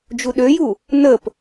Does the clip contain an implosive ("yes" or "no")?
yes